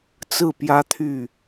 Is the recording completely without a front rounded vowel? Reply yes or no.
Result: no